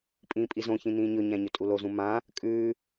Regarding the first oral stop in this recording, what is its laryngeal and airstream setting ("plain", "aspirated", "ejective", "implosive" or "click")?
ejective